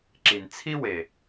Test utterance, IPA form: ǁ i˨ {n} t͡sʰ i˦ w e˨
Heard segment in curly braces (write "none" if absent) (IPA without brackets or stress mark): n